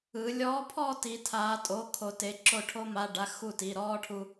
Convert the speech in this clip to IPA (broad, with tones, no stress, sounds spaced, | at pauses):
ɯ˩˧ lʲ ɔː˧˥ pʰ ɔ˥˧ t i˩˧ tʰ aː˩˧ tʼ o˩˧˩ kʰ o˩˧ t e˩˧ ǁ o˧˩ ʈʰ o˧ m a˩˧˩ ɖ a˩˧˩ x u˧˩ t i˩˧˩ ɾ ɔː˥˧ ʈʰ u˧